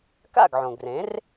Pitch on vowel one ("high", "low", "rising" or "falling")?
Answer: falling